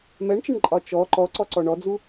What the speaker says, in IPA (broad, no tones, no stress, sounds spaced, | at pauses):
m ɛ ɳ t͡ʃ ə ɳ ǃʼ ɒ t͡ʃ ɔ ǃ ɔ ǀ ɔ ǀ ɔ ɳ ɔ d͡z u